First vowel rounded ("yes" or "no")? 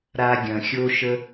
no